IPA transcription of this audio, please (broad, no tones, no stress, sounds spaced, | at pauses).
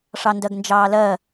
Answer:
ʂ ɑ n d ɜ ɡ n d͡ʒ ɑː l ɜ